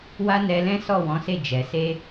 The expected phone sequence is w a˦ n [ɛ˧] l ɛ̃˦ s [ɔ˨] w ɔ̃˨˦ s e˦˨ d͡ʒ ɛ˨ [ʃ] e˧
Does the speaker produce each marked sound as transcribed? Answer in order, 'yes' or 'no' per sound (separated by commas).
yes, no, no